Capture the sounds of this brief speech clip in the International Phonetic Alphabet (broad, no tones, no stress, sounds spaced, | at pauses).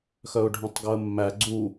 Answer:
x œ ʊ̯ ɖʱ œ̃ tˤ ɡ o ə̯ mː æ ɡ͡ǀ u